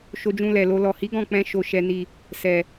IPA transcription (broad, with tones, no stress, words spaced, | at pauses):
ʃo˧d͡ʒũ˧ lɛ˨lo˧ lɔ˨hi˨˦ ɡɔ̃˦˨k͡pɛ̃˧ ʃo˨ʃɛ˨ni˨ | sɛ˨